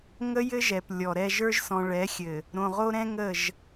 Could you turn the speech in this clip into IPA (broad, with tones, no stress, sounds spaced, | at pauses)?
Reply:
ŋ ə˦ j ɘ˦ ʒ ɛ˨ p lʲ ɔ˨ ɾ ɛ˦ ʒ ə˞˦ ʒ s ɔ̃˨ ɭ ɛ˨˦ xʲ ɘ˨ | ɾ õ˨ ʁ o˦ ɾ ɛ̃˦ ŋ ə˦˨ ʒ